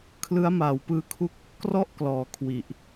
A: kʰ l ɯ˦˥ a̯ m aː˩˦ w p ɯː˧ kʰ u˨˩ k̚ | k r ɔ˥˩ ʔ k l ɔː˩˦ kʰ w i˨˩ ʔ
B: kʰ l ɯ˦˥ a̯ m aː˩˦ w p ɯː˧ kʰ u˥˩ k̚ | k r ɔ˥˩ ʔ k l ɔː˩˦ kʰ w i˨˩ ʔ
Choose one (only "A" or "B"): B